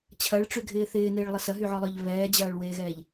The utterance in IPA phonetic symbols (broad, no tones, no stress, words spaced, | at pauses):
t͡ɕʰɐɭʈ͡ʂyɡʱɪː θɪːneːɭlˠə sɐɦyʕɔlˠœʎ βɛːd͡ʑɐːɭweːɣɛːʎ